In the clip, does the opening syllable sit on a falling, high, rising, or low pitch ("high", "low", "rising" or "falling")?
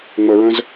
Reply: low